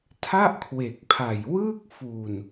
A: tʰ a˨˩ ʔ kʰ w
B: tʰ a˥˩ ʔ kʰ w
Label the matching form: B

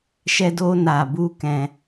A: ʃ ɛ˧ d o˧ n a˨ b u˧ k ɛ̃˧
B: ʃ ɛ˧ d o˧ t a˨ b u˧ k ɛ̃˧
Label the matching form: A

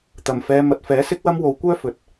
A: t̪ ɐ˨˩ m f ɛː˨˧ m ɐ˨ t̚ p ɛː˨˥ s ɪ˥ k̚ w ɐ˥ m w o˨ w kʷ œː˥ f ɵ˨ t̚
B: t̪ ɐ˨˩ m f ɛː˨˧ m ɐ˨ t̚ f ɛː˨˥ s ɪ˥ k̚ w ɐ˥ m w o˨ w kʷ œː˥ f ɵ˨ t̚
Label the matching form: B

